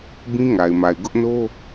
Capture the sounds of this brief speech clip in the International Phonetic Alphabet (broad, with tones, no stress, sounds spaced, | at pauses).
b ĩ˦ ŋ a˨ ɪ̯ m a˨ ɪ̯ ɡ ʊ˦ ʔ n o˦